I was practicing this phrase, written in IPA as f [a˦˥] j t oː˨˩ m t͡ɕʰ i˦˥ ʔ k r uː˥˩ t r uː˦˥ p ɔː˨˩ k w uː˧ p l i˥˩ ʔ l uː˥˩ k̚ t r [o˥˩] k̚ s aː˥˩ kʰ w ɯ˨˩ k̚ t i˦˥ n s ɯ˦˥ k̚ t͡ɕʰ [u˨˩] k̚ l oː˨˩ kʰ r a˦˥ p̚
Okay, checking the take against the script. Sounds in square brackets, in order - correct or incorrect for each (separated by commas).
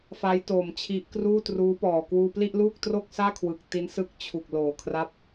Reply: correct, correct, correct